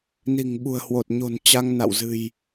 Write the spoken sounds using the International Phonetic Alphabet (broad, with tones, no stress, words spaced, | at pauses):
ni̤˨˩ŋɓṳ˨˩ə̯hwo˨˩t̚ ɲo̤˨˩n t͡ɕa˧ŋna̰˧˨w zɨ̤˨˩j